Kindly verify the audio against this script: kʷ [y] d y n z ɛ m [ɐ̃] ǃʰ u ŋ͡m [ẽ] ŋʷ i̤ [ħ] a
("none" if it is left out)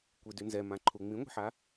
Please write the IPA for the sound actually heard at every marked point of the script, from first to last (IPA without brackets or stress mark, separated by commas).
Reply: i, ã, ĩ, ħ